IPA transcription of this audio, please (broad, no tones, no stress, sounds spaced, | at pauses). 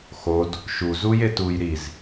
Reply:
x o d | ʃ u z u j e t u j ɾ i z